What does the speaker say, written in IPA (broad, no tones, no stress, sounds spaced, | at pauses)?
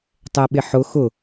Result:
tˤ ɛ ɓ ɪ ħ ʊ x ʊ